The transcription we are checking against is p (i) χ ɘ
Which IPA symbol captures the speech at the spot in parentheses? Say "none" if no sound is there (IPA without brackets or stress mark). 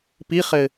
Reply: i